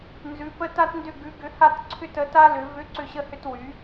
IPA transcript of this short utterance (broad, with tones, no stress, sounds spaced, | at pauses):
n z ʉ˧˥ p ə˥ t a˥ t n d ʏ˥˧ ɡ ʉ˧˥ ɡ ʏ˧˥ h a˥˧ t ǀʰ ʏ˥˧ t ə˧˥ t a˥ l ʏ˧˥ v ʏ˧˥ ǀ ʏ˥˧ ɕ ə˥ h ʏ˥ t w y˧˥